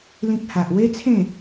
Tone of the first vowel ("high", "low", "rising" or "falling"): high